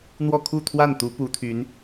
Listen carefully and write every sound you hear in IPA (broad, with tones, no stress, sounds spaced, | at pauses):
n̪ w ɔ˥˧ kʰ u˥˧ t̪ʰ w a˥˩ n t̪ u˧˥ p u˧˥ t̪ʰ y˧˥ n